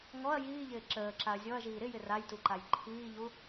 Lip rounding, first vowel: rounded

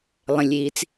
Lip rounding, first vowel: unrounded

